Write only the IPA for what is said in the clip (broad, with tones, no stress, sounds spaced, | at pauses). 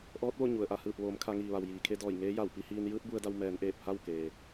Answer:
ʔ ɔː˧˥ t̚ ʋ o˥˨ ɲ u˩ ə̯ ʔ a˧˩ h ɯː˧˩ p̚ ʋ oː˩˧ m kʰ a˧ ŋ iː˩ ʋ a˩ w j iː˩ kʰ e˧ d ɔː˧˩ j ŋ eː˧˥ j a˧˩ w p i˧ h iː˧ n j ɯː˧˥ t̚ b u˧ ə̯ d a˧ w m ɛː˩˧ n ʔ eː˧˩ p̚ h a˥˨ w k eː˩